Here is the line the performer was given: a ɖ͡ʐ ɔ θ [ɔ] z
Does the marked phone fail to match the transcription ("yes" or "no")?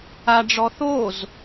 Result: yes